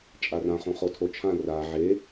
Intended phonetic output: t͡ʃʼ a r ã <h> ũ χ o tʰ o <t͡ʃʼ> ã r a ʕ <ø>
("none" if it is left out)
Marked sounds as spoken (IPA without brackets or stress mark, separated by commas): χ, t͡ʃʰ, e